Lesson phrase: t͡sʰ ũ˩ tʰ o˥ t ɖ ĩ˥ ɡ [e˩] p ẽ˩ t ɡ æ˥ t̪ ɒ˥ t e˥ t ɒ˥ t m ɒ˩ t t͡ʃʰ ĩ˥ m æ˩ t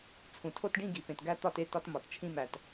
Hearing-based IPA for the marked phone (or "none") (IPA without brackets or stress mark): i˩